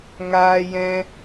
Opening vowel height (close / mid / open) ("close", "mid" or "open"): open